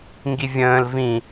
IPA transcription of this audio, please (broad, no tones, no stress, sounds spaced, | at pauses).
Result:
ŋ ɡ i vʲ ə̃ː l v ĩ